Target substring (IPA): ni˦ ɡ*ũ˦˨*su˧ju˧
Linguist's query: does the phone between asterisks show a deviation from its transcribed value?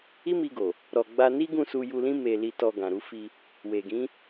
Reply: no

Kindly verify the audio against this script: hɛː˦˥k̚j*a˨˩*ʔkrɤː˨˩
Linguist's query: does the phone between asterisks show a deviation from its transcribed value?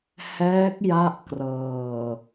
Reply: yes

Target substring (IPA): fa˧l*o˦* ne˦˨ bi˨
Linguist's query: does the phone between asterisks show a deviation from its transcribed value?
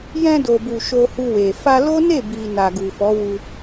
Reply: no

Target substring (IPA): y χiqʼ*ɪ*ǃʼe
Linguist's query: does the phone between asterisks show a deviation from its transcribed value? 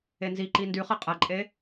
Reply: yes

